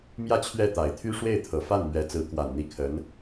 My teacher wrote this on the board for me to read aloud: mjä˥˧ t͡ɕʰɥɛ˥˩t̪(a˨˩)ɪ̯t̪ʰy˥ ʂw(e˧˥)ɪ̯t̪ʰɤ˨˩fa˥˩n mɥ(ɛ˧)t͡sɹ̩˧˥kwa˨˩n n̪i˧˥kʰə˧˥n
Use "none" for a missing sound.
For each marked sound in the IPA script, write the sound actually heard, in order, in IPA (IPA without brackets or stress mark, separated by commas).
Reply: a˨˩, e˥˩, ɛ˧˥